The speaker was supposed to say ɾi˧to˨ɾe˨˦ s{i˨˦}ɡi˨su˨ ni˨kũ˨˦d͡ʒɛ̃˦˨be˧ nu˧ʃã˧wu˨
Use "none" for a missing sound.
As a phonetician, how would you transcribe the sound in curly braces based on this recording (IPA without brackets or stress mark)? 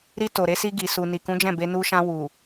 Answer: i˧